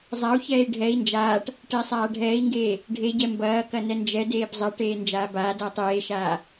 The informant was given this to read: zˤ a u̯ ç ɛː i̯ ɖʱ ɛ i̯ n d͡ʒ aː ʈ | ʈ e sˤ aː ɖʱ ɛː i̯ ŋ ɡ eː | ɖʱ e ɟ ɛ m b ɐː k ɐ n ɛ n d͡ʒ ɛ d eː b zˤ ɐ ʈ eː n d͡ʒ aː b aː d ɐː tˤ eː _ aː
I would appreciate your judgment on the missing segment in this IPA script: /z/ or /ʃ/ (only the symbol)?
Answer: ʃ